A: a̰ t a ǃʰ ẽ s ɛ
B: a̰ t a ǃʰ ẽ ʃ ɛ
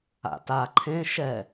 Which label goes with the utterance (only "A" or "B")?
B